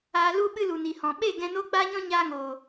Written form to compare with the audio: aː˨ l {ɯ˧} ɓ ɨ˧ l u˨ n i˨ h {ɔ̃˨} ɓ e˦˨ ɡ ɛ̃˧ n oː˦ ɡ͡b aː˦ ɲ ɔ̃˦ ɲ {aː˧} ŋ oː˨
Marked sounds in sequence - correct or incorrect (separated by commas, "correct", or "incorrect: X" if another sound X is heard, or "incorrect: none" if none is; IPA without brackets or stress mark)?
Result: incorrect: u˧, correct, correct